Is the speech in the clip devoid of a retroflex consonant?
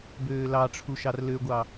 no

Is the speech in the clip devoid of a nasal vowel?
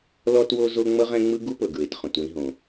no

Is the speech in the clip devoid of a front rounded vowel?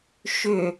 no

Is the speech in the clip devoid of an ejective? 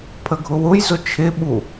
yes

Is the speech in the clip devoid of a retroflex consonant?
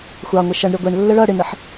no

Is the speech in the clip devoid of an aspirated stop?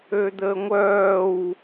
yes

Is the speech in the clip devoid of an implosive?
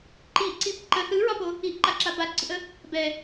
yes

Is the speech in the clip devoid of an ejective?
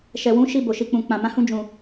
yes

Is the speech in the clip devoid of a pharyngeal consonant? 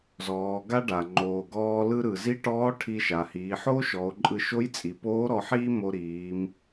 no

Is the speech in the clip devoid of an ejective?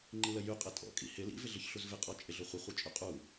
no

